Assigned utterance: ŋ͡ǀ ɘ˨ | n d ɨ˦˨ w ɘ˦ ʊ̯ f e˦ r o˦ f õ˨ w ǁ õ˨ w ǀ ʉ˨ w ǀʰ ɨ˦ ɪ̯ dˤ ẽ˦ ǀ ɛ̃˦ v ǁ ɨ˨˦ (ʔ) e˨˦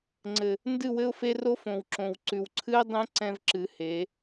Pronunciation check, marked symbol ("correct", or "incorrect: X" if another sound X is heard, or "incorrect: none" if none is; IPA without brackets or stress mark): incorrect: h